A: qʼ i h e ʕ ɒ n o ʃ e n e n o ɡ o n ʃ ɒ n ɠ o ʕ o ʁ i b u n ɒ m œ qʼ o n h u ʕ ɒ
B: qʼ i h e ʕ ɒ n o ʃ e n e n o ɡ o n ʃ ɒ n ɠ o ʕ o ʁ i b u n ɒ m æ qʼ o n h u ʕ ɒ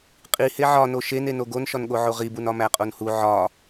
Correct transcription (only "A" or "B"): B